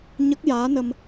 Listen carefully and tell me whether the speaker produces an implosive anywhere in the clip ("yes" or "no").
no